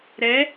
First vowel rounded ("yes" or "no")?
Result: no